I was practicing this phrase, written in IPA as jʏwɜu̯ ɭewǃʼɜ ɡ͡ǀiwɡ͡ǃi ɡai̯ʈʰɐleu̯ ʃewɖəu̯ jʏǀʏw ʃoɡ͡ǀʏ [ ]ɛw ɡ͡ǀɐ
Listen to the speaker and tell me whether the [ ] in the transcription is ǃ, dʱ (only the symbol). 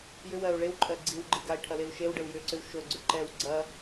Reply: ǃ